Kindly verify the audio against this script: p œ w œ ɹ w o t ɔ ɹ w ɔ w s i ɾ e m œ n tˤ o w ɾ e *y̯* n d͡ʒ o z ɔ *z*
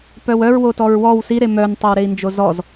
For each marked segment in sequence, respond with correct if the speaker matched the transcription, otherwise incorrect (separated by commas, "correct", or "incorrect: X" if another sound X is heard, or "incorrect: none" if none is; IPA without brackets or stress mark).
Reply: incorrect: i̯, correct